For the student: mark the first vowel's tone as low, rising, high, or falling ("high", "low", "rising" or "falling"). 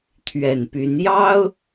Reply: low